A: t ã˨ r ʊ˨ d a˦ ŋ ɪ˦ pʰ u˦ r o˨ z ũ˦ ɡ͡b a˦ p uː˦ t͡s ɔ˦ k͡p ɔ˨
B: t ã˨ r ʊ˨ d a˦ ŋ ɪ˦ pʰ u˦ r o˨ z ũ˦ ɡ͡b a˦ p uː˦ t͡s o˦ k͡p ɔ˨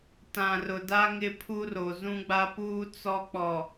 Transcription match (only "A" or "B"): A